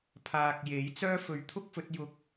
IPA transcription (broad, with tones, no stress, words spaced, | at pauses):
pʰaː˨k̚je˨˥jt͡sœː˥ fɵ˨˥ɥt̪ʰʊ˥k̚ fɵ˨˥t̚jʊ˧k̚